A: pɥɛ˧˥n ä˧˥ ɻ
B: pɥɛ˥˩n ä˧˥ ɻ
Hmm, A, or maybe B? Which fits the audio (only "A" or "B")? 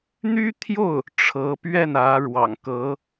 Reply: B